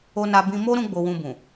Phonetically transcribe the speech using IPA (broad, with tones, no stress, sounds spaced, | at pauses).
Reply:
o˧ n a˧ b ĩ˧ m o˦ ɾ ũ˦ ɡ͡b o˧ w ũ˧ b ũ˨